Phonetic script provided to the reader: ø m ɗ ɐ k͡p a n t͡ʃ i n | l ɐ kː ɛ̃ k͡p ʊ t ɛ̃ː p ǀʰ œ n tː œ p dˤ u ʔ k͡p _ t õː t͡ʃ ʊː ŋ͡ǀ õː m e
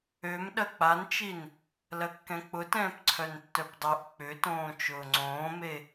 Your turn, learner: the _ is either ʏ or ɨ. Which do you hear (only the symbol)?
ʏ